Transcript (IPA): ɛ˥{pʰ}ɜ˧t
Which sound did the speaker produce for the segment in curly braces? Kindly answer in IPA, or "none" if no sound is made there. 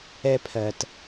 pʰ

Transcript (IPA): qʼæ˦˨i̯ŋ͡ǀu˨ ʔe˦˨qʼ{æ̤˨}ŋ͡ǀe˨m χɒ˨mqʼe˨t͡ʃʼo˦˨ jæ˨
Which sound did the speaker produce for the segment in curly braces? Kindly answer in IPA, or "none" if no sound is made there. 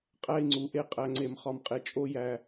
æ˨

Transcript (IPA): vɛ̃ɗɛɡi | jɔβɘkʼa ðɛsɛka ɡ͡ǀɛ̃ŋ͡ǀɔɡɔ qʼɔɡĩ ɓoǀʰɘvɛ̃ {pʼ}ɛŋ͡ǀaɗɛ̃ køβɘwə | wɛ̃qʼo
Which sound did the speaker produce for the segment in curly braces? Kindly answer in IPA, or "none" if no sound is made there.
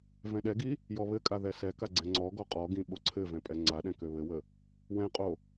pʼ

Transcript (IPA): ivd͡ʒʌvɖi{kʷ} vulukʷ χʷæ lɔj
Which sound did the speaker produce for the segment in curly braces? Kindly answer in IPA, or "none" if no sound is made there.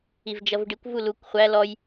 kʷ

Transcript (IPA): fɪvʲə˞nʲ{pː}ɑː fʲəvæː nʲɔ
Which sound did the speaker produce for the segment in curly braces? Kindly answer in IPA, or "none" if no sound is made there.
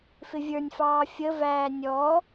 f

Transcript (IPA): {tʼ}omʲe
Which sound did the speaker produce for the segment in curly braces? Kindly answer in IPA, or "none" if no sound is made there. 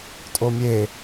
tʼ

